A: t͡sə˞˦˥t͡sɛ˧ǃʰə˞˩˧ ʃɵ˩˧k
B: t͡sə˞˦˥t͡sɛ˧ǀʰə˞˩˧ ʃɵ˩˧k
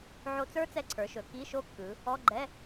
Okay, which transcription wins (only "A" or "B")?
B